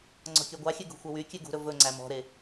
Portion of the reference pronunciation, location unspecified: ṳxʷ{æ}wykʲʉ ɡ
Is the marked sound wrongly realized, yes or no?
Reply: yes